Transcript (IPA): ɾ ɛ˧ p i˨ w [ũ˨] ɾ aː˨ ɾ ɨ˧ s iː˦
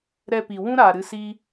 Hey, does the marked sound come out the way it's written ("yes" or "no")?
no